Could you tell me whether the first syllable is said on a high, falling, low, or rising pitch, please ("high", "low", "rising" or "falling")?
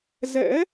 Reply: rising